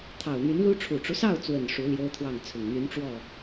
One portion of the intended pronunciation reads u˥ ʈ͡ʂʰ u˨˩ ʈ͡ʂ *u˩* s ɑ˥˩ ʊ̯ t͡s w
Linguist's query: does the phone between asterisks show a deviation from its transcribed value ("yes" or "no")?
yes